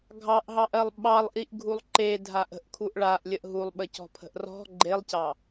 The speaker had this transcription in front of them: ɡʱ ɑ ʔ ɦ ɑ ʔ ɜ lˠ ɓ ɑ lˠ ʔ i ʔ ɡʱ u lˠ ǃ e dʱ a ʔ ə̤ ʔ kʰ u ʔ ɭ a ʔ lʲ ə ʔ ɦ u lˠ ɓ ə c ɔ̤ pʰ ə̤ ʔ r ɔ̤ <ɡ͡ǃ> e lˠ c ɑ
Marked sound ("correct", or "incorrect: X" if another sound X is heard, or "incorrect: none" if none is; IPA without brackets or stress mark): correct